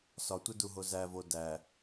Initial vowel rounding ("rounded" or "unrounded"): rounded